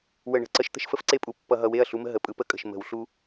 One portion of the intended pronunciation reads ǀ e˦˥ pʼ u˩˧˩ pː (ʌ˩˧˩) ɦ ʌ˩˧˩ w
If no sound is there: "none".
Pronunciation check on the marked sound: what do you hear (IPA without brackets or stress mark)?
ʌ˧˩˧